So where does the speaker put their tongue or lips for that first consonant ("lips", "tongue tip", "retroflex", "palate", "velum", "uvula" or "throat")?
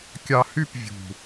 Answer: velum